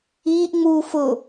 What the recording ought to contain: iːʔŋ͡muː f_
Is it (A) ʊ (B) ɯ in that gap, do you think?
A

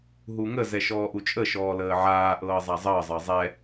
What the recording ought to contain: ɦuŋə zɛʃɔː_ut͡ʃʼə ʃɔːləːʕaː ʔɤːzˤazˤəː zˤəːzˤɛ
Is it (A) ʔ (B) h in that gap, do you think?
A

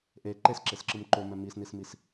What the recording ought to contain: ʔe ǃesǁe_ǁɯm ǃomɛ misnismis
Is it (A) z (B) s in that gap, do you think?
B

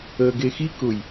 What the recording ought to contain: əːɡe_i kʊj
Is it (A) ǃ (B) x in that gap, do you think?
B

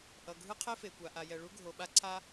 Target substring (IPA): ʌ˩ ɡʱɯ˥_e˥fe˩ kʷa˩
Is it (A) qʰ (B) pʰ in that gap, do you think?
A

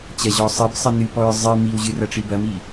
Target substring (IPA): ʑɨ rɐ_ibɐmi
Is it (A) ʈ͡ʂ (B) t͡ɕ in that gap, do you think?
A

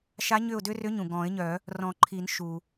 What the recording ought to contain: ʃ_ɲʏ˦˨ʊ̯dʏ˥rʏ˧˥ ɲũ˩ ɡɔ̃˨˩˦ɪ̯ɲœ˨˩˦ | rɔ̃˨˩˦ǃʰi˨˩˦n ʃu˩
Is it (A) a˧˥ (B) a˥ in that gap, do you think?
A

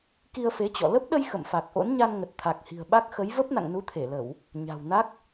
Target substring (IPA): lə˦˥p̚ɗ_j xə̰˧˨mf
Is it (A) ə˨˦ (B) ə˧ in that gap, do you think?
B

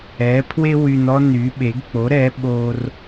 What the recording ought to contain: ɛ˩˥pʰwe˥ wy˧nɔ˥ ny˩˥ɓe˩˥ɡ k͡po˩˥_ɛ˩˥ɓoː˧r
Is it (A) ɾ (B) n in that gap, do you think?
A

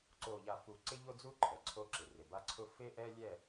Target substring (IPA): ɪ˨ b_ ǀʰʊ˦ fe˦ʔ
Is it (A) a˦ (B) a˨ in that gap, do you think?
A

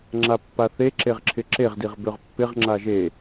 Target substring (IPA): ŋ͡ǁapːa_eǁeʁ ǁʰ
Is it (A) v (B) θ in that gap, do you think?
B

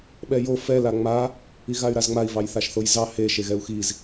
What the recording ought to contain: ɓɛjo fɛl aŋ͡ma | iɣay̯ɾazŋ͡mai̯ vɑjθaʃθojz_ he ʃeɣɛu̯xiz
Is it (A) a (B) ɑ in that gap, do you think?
B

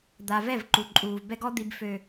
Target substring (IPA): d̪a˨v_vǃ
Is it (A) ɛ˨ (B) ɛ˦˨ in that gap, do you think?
B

